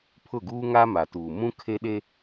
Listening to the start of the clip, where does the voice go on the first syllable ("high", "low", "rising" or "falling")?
falling